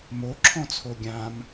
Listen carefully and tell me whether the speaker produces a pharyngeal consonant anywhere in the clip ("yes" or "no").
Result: no